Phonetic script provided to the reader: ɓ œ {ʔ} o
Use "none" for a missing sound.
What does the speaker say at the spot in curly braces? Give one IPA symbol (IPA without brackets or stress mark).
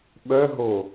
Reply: ɦ